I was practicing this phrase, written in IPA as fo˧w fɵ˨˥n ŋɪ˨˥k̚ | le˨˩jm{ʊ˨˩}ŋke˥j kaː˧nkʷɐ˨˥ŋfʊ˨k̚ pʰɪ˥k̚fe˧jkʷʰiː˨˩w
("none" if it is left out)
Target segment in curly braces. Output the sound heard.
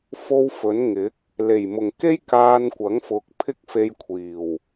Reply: ʊ˨˩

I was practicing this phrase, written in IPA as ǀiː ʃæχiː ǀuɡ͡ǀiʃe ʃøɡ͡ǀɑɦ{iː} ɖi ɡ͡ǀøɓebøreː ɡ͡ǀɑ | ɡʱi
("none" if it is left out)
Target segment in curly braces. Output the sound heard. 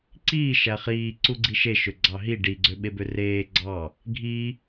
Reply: i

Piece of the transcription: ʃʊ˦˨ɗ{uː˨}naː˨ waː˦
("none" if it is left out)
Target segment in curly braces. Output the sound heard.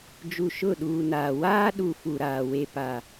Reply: uː˨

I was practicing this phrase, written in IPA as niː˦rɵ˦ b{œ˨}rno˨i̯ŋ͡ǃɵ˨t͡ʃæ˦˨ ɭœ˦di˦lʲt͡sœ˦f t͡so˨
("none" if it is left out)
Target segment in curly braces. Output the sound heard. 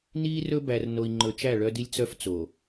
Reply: æ˨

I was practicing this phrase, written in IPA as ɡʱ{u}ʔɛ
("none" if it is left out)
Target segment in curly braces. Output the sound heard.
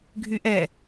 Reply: y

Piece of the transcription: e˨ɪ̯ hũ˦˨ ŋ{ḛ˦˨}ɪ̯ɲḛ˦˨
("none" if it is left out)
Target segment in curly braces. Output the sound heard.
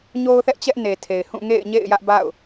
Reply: ḛ˦˨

